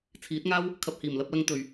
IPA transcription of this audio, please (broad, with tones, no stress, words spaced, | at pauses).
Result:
t͡sʰiː˨˥t̚ŋaː˥w | kʰɐ˨p̚hiː˨˩mlɐ˧p̚lɐ˧ŋ t̪ɵ˨ɥ